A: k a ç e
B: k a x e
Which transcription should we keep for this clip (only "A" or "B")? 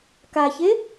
A